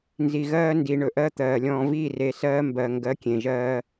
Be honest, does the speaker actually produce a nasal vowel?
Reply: yes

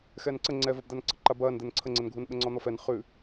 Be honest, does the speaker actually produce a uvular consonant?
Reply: yes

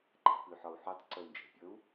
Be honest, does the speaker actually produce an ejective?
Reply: yes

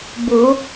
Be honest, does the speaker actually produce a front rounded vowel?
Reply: no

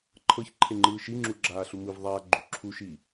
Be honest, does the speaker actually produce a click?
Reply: yes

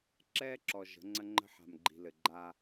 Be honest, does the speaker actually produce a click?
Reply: yes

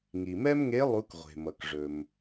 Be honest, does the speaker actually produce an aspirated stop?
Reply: no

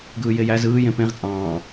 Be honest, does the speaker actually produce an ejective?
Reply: yes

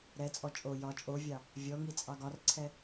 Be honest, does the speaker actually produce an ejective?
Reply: yes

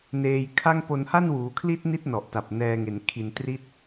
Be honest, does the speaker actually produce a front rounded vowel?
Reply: no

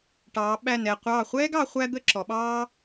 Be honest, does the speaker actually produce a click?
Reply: yes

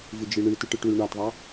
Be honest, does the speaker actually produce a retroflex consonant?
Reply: yes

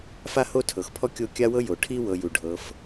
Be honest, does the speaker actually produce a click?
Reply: no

